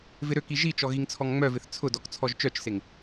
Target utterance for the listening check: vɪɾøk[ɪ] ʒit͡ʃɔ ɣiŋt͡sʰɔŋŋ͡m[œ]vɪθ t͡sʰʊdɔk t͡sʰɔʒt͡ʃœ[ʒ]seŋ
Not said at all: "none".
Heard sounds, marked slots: i, œ, t͡ʃ

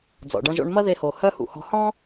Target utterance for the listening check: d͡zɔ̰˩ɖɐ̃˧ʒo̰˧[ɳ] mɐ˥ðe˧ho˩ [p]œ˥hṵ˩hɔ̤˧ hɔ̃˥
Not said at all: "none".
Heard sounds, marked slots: ɳ, h

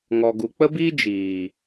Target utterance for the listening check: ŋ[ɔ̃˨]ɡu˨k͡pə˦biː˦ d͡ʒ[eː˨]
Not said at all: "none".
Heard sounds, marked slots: ɔ˨, iː˨

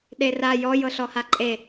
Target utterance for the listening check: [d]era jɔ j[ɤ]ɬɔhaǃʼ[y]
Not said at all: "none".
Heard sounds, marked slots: ɗ, ɤ, e

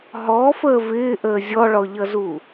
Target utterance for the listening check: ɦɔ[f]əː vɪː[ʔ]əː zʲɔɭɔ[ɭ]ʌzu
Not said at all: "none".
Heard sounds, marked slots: f, ʔ, ʎ

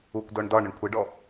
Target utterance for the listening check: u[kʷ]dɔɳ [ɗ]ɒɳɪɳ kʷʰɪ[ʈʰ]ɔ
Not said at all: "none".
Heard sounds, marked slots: kʷ, d, ɖ

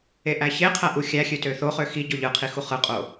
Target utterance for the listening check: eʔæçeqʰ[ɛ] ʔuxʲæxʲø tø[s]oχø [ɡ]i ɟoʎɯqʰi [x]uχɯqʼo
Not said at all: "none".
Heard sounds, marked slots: æ, θ, x, x

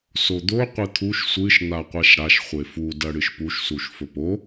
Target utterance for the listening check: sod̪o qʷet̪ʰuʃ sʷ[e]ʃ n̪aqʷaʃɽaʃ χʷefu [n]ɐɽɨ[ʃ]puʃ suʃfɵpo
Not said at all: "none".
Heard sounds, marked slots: ɨ, d, ʃ

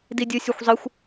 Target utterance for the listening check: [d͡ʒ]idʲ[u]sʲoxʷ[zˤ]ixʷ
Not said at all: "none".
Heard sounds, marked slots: d, ɯ, zˤ

